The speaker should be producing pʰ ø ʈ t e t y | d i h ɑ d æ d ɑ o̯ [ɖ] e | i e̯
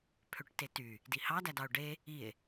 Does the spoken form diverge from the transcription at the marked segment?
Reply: no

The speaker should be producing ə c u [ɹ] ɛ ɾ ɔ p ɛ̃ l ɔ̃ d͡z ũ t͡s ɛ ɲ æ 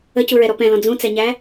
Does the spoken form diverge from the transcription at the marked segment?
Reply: no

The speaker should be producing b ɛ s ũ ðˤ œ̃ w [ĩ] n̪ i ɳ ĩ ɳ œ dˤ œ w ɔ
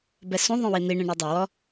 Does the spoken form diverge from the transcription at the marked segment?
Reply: yes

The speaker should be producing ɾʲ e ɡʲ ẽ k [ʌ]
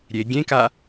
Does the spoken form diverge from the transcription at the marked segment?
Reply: yes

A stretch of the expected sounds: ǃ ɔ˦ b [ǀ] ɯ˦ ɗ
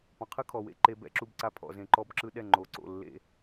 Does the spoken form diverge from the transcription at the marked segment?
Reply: yes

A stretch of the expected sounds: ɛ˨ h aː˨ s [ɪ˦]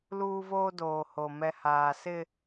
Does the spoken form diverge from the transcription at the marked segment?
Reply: no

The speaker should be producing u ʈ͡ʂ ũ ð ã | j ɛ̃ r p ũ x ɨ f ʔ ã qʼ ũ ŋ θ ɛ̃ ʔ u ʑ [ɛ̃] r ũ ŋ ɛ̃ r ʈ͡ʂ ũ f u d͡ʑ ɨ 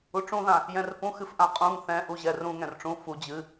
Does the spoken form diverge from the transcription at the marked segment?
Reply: yes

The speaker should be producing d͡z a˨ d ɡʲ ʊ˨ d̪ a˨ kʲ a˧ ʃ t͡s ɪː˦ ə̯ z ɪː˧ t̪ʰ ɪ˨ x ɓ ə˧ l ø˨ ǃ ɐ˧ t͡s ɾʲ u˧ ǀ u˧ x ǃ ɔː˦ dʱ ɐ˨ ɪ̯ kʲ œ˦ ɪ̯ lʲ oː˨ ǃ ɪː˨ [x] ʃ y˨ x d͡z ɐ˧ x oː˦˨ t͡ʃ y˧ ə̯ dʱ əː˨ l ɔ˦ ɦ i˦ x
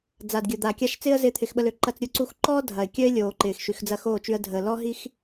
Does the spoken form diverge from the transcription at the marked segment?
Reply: no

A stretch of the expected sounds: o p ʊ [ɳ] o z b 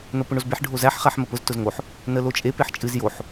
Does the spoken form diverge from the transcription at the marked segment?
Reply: no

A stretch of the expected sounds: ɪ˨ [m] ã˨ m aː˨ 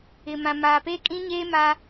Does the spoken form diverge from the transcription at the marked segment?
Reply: no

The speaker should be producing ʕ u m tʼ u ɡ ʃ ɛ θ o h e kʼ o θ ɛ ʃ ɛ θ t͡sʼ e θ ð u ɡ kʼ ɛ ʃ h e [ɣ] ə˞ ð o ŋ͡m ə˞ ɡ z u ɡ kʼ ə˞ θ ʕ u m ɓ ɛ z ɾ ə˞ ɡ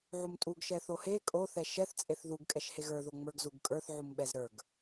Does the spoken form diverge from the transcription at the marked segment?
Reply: no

